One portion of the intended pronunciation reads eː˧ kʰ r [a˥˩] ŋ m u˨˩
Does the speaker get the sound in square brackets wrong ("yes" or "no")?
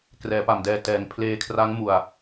yes